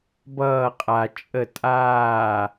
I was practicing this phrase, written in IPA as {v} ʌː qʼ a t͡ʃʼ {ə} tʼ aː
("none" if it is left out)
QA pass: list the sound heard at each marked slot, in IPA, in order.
b, ə

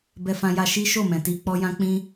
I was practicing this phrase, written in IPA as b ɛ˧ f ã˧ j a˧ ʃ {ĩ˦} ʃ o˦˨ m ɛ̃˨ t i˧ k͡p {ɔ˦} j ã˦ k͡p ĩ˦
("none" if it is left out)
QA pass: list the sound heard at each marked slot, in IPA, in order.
i˦, ɔ˦

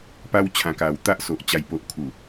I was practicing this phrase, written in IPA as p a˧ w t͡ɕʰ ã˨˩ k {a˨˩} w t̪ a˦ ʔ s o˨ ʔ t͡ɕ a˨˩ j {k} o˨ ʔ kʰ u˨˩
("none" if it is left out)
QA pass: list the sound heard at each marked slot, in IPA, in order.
a˨˩, p

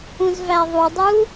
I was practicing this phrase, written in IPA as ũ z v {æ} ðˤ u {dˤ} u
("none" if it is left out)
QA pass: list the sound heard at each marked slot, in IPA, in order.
æ, dˤ

